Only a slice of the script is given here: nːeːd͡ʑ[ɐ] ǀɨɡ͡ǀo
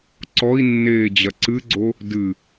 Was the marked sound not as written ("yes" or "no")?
no